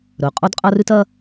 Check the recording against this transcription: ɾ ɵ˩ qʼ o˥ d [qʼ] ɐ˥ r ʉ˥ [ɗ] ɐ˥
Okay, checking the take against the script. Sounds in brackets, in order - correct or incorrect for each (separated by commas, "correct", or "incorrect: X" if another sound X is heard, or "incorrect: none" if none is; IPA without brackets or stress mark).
correct, incorrect: t